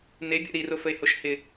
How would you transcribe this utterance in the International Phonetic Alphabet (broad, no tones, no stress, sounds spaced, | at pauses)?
n e bʲ o̰ ɾ i r o f ə e̯ h o ʃ h ɪ